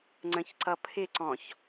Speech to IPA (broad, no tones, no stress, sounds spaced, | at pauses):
ŋ͡ǀ ə̃ ç ǀ ʌ pʰ ɪ ǀ ɔ̃ ç